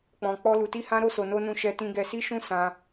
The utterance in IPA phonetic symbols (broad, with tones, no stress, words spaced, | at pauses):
k͡pɔ̃˧k͡pɔ˦lu˧ti˦ hã˦ɾo˦so˧ no˦nũ˦ʃɛ˦ tĩ˦ɡɛ˦ si˦ʃũ˦ sã˦